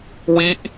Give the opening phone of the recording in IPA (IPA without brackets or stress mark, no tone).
w